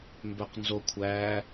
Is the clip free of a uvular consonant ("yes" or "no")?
no